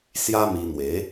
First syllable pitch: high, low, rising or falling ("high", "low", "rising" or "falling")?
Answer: high